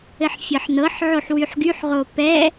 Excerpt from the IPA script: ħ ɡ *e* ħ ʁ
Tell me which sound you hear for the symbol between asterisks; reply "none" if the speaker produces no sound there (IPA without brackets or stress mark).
y